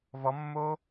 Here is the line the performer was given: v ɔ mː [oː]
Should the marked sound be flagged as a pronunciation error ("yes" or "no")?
no